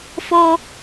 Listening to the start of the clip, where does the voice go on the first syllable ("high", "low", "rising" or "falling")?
high